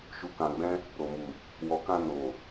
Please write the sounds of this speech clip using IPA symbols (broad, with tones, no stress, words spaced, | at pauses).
ʃu˧kã˧ɡ͡bɛ̃˦ | ɾo˨mu˨ | wɔ˨kã˧no˨